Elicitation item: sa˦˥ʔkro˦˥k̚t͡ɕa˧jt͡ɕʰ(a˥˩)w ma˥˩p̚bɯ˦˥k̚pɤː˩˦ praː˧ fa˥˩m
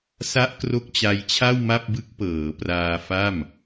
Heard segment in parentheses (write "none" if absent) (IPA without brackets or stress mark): a˥˩